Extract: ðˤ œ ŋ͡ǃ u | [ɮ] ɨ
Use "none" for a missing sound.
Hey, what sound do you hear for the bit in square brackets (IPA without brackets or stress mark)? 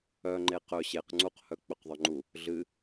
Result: ɮ